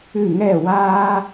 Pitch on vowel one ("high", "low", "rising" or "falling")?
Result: falling